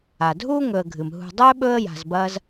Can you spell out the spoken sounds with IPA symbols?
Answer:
a˩ dʱ uː˥ ŋ ɵ˨ ə̯ ɡʱ ɨ˩ m ɦ ṳ˨ dˤ ɵː˥ ɓ ɵ˦ ə̯ j a̤˨ z b ɐː˦ z

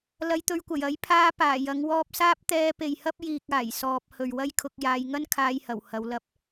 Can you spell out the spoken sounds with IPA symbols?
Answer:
l ɐ˧ j t̪ ɵ˧ ɥ kʷ ɐ˨˩ j ɐ˨˥ j pʰ aː˧ p aː˨˩ j ɐ˨˥ ŋ w ɔː˧ p̚ s aː˥ p̚ t̪ ɛː˧ p e˨ j h ɐ˥ p̚ j iː˧ k̚ aː˨˩ j s ɔː˧ p̚ h ɵ˨ ɥ w ɐ˥ j kʰ ʊ˧ k̚ j aː˨˧ j ŋ ɐ˥ n kʰ aː˧ j h ɐ˨˩ w h ɐ˨˧ w l ɐ˧ p̚

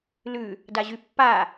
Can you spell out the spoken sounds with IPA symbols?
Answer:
l ʉ | d a ʑ y pː a

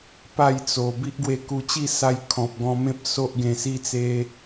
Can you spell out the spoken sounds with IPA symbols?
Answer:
p a˥˧ j t͡s o˨˩ b i˦ ʔ ɡ w e˧ k u˧ t͡ɕ i˥˧ s a˧ j kʰ ɔ̃˨ p̚ ɡ ɔ̃˧ m ẽ˦ p̚ s o˦ ʔ ɡ ẽ˧ s i˦ t͡s e˦

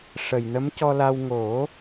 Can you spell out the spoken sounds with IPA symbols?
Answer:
ʂ ə˨˩ j n ə˧˥ m c ɔ˧ l a˧ w ŋ o˨˩˦

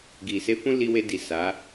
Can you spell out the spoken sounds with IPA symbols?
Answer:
ɡ i˨ s e˧ f ũ˦ l i˧ w e˧ d i˨ s a˨˦

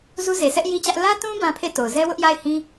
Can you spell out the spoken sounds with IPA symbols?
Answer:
z u˦ z e˨ s ɛ˦ ʔ j i˦ t͡ɕ ä˦ ʔ l ä˦ t ũ˦ b ã˦ pʰ e˦˨ t o˨ ʊ̯ z ɛ˦ w ʊ˦ ʔ j a˦˨ ɪ̯ h ĩ˦

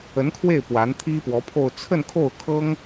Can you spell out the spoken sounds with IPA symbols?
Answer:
ə˧˥ n kʰ w e˥˩ ɪ̯ p w a˧˥ n t̪ʰ i˥ p w ɔ˧˥ pʰ o˥˧ ʊ̯ t͡sʰ ə˥˧ n kʰ o˥˩ ʊ̯ kʰ ɤ˥ ŋ

